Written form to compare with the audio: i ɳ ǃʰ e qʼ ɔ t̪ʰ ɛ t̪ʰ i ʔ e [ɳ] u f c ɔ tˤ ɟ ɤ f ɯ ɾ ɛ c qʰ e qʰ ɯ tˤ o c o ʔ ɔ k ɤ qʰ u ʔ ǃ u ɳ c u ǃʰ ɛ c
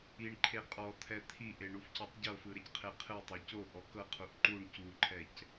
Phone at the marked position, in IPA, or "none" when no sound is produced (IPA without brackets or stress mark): ɳ